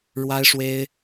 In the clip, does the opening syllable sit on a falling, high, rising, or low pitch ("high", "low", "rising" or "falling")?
high